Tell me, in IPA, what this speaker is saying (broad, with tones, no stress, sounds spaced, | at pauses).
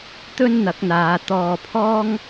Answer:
t̪ ɵ˥ n n̪ ɐ˨˥ k̚ n̪ aː˨˧ t̪ ɔː˨ pʰ ɔː˥ ŋ